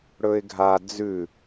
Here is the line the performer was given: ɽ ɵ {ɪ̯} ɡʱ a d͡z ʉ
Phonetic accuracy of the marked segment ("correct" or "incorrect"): correct